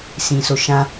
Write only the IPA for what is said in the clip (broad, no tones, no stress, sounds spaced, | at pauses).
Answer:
s ĩ s o ʃ ã